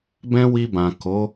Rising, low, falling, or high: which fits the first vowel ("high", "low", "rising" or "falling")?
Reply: high